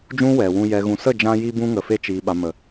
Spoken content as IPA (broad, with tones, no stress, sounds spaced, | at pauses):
d͡ʒ ũ˦ w ɛ˨ w ũ˧ j ɛ˨ ɣ ũ˨ s ə˦˨ d͡ʒ ã˧ j i˦ b ũ˦ ŋ ə˨ f e˧ t͡ʃ iː˨ ɓ a˨ m ə˨